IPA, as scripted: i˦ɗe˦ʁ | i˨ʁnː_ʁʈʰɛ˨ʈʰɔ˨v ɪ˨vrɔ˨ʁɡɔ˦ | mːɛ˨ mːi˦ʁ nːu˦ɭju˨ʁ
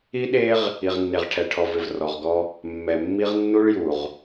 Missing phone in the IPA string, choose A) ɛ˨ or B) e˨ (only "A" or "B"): B